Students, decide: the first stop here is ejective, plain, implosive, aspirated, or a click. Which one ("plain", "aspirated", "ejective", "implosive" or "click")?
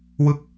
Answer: plain